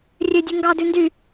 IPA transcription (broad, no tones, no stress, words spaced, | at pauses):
rʲødʲʉ ŋɡɑdʉ ndy